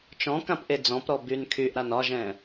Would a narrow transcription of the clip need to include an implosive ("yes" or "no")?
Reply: no